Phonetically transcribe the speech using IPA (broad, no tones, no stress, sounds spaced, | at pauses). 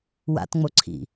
w a̰ t ŋ͡m o ǀʰ ḭ